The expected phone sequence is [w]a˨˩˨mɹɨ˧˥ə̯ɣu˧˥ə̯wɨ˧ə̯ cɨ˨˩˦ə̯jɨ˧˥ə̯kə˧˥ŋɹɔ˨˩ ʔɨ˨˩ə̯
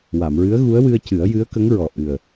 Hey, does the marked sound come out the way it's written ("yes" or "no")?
yes